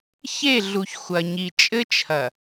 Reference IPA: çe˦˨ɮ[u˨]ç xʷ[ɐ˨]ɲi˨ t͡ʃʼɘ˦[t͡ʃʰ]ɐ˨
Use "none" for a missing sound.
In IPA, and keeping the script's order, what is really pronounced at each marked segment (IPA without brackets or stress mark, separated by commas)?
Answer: u˨, ɐ˨, t͡ʃʰ